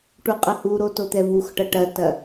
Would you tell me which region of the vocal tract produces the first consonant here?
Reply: retroflex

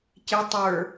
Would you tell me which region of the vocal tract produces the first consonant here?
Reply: palate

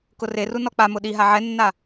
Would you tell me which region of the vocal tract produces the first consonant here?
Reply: velum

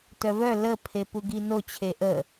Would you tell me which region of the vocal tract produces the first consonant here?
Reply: tongue tip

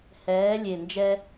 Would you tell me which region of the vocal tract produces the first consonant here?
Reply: throat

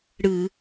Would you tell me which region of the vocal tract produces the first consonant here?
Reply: retroflex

